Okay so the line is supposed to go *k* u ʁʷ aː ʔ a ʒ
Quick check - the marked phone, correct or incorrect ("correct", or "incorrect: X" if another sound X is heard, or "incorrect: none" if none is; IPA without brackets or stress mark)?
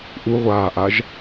incorrect: ʔ